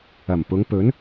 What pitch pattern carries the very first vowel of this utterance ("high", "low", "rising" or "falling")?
low